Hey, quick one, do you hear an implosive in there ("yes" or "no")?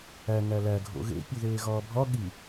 yes